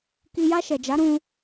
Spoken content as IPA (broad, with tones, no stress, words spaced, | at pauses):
ki˨ja˧ ʃɛ˨d͡ʒa˨˦ɾũ˧